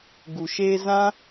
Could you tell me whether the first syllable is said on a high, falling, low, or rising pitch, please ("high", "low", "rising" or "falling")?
low